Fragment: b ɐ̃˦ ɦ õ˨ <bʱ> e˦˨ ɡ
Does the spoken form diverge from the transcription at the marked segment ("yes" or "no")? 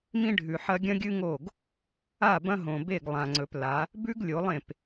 yes